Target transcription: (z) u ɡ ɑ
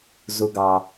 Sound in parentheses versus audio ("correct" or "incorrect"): correct